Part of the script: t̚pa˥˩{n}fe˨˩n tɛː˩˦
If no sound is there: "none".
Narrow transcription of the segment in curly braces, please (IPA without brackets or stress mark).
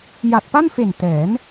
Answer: n